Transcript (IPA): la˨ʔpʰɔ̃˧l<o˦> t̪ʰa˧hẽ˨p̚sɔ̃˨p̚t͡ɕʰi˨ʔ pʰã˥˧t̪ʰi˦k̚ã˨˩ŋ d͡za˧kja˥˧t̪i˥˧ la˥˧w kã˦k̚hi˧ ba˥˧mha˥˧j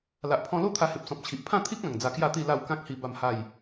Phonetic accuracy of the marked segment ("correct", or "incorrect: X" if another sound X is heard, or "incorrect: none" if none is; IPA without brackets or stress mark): correct